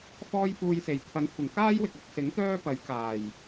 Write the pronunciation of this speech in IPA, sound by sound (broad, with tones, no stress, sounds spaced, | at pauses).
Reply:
f ɔː˥ j f uː˧ j s e˨˩ j t̪ʰ ɐ˨˧ n kʷʰ ɪ˨˩ ŋ k aː˥ j w ɪ˨ k̚ ɐ˨˥ k̚ s ɪ˨˥ ŋ t̪ œː˥ p ɐ˨˥ j k aː˨˩ j